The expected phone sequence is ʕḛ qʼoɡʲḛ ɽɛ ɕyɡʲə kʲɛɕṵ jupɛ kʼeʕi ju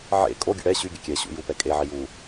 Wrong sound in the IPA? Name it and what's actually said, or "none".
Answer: qʼ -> kʼ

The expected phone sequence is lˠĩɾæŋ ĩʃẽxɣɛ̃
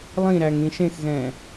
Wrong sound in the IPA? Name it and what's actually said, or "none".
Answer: none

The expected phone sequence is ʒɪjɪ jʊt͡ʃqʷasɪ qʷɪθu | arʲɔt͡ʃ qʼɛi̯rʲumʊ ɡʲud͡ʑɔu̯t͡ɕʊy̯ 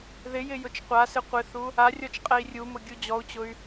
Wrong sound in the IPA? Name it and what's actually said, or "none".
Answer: ʒ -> ð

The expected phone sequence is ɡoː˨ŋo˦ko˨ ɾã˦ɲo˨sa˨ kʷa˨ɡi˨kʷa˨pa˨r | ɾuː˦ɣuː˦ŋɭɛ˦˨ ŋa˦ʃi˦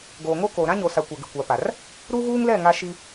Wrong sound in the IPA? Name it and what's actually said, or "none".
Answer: ɭ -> l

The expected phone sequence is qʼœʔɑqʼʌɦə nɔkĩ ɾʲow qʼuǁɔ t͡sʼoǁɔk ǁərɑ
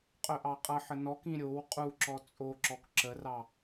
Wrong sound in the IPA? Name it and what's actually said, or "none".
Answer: ɦ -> ħ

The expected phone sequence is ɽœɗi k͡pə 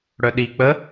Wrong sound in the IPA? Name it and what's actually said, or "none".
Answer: none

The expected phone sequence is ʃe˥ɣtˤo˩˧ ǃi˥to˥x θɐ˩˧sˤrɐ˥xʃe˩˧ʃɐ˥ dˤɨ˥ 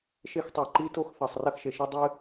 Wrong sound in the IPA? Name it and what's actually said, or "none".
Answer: ɣ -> x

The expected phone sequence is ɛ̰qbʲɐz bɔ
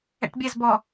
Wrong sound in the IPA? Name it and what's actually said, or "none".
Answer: q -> ʈ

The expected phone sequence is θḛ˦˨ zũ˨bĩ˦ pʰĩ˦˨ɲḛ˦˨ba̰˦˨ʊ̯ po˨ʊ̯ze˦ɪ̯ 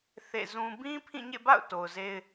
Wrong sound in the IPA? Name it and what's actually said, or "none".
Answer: p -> t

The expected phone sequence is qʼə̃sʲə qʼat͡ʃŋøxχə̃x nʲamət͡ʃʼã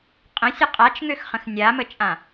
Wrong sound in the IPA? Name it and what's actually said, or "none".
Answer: none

